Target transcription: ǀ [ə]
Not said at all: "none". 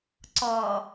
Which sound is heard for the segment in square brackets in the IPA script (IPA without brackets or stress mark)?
ɔ